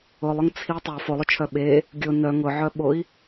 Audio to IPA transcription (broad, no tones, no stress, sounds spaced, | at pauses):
ʊ lˠ ʊ ŋ t͡sʰ i tˤ o f o lˠ ʊ t͡ʃʰ œ ɓ e | ɡʲ ʊ n œ ŋ ʊ ʕ œ ɓ o i̯